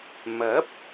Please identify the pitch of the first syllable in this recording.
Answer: rising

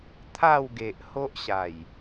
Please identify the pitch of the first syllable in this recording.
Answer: falling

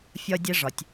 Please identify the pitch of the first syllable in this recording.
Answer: high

